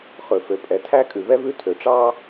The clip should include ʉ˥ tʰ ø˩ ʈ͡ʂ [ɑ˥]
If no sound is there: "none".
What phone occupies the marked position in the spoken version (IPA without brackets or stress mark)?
ɑ˥